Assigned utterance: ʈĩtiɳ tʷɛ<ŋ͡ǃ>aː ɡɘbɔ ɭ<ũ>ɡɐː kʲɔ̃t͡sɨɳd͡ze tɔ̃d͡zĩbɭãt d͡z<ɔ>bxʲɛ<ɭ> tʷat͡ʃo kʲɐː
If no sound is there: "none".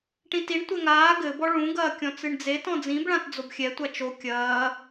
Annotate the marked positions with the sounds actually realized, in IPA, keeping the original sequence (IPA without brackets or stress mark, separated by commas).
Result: ŋ, ũ, o, none